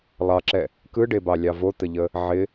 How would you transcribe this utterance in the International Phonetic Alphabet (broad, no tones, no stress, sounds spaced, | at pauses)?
lˠ ɑ ǁ ɛ | k ɯ ɖ e b ɑ lʲ ɑ v o t̪ ə ʎ ə | ʕ ɪ